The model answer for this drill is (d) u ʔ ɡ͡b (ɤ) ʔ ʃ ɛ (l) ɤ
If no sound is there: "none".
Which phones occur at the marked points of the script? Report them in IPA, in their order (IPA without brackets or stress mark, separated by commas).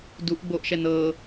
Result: d, o, n